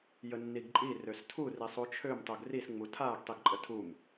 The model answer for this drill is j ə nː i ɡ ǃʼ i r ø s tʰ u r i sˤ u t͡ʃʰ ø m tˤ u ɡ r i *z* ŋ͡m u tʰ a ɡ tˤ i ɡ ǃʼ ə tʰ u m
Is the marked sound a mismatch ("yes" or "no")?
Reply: yes